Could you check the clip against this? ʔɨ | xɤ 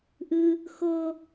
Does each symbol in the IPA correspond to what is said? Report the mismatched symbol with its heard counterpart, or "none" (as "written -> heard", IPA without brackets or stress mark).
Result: none